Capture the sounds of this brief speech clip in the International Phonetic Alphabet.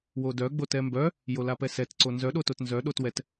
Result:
w o d œ ɡ͡b o t ɛ m b œ | j o l a p ɛ s ɛ t ǀ o n z œ ɗ o t o t n z œ ɗ o t w ɛ t

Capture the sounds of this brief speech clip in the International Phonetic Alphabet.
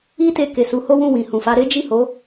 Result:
i˦ t e˧ k e˨ s u˨˦ h o˦ w ũ˦˨ w ĩ˨ h ũ˨ f a˧ ɾ e˦ d͡ʒ i˦˨ h o˨˦

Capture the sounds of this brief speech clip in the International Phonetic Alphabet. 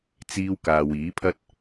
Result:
t͡s iː˧ w k aː˨ w iː˨˥ pʰ ɐ˥ t̚

